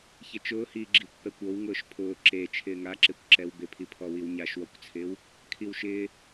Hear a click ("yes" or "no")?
yes